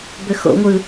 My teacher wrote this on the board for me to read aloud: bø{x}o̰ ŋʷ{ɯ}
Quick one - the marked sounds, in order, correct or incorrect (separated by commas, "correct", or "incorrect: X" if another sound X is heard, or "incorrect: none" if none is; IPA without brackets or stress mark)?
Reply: correct, correct